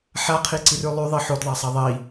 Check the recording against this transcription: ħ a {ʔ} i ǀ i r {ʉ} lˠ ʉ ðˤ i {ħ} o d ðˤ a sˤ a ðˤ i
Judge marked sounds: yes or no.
no, yes, yes

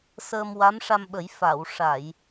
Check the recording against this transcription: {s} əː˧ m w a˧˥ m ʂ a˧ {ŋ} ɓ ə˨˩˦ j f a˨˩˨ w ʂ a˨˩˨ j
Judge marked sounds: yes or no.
yes, no

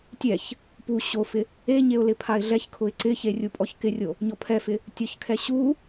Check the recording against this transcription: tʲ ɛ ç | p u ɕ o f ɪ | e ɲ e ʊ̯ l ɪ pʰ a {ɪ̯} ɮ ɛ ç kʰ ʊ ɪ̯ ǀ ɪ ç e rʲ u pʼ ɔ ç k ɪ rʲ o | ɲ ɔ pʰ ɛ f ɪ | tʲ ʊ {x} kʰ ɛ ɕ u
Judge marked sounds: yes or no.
yes, no

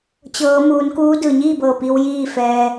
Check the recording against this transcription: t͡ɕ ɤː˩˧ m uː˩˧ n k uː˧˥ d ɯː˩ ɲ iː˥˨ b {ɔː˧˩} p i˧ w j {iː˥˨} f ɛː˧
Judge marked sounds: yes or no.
no, yes

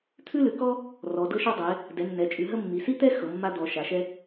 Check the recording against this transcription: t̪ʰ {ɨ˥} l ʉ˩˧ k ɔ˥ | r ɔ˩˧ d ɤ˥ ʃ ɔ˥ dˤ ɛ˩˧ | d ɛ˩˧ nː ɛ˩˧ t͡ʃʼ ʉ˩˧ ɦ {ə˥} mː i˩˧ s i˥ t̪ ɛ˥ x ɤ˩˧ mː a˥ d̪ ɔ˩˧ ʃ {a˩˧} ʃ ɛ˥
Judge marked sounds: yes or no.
no, yes, yes

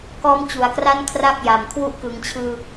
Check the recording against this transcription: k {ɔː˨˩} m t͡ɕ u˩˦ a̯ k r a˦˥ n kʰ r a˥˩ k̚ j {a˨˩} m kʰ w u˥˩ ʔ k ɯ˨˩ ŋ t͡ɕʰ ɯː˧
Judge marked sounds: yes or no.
no, yes

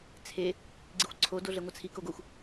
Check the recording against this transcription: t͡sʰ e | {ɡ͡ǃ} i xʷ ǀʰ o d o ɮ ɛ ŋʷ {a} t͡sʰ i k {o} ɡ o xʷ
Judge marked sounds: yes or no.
no, yes, yes

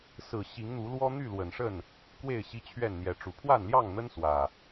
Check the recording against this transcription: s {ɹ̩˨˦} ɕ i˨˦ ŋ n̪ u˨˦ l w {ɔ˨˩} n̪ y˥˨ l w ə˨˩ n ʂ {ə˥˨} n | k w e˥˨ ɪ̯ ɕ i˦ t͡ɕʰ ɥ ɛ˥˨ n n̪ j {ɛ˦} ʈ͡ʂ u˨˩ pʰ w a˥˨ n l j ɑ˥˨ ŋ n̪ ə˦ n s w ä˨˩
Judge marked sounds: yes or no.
no, no, yes, no

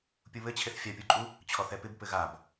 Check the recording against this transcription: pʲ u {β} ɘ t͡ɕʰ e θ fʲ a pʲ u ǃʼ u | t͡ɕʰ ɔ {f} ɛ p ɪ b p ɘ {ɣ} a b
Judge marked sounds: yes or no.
yes, no, yes

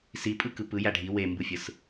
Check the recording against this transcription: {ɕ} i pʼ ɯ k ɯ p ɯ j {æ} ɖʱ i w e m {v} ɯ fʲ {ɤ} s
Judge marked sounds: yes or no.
no, yes, no, no

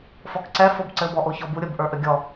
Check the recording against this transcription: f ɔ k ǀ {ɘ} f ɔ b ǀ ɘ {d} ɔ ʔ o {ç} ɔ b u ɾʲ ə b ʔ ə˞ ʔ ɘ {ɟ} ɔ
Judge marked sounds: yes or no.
no, no, yes, no

